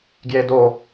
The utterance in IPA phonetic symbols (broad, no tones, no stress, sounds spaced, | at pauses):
ɡ j e d o